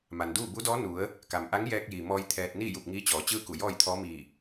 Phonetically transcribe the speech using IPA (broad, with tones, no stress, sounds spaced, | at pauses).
m a˩ n d uː˥˨ b u˧˥ d ɔː˧˥ n u˩˧ ə̯ | k a˩ m ʔ a˧˥ ŋ j ɛː˧ k̚ j iː˩ m ɔː˧ j t̪ʰ ɛː˧ t̚ n iː˥˨ j u˧˩ p̚ ŋ iː˧˥ t͡ɕ ɔː˩˧ t͡ɕ ɯː˥˨ k u˧˩ j ɔː˥˨ j t̪ʰ ɔː˧˥ m iː˧˩